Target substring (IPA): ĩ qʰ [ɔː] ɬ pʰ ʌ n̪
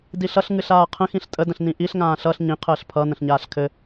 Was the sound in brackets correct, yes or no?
no